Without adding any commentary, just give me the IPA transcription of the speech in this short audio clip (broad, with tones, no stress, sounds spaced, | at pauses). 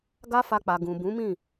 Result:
ɡ a˦ f a˧ k͡p a˨ ɡ ũ˨ b ũ˨˦ m ĩ˦˨